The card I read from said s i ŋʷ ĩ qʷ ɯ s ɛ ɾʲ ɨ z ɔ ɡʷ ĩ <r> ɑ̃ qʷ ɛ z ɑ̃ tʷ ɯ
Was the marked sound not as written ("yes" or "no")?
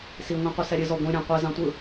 yes